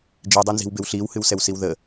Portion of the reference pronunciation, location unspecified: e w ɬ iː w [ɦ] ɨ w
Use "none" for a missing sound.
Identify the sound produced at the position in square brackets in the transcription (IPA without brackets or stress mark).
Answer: h